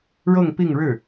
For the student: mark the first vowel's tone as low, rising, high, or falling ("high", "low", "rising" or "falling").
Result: falling